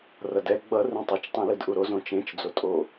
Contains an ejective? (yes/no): yes